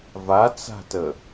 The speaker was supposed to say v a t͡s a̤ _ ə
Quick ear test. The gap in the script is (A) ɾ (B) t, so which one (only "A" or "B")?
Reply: B